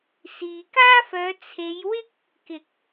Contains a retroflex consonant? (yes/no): no